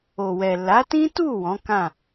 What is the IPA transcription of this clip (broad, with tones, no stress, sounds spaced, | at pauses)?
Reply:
o˨ w ɛ˨ l a˨˦ t ĩ˦ t u˦˨ w ɔ̃˨˦ k ã˦˨